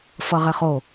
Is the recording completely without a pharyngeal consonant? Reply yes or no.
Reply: yes